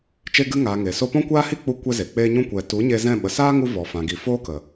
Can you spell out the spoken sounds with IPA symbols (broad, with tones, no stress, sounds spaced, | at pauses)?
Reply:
t͡ʃ e˧ ɡ ɨ˧ ŋ aː˨ ŋ e˨ s o˧ p ɔ̃˦ kʷ aː˦ h i˦ k͡p u˦ kʷ ɛ˦ z e˨ k͡p eː˧ ɲ ũ˧ kʷ ɛ˨ t u˨˦ ɲ e˧ z ɛ̃˦˨ ɓ ə˨ s aː˦ ŋ u˧ v ɔ˨ f ã˨ ɡ i˨ f oː˦ k ə˨